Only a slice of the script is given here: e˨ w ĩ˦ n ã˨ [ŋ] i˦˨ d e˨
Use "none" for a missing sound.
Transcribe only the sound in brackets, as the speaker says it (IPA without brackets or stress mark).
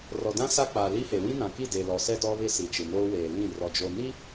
k